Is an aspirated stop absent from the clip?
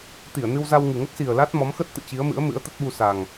yes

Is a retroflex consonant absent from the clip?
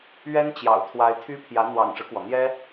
no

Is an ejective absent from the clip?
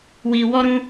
yes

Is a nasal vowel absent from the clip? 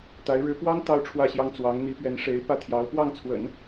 yes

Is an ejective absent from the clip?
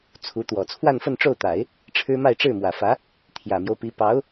yes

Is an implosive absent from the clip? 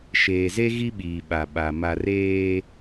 no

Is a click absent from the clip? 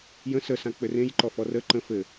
no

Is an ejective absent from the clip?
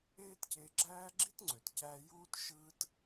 yes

